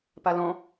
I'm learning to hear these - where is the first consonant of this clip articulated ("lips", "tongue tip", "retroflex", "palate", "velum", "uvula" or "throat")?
lips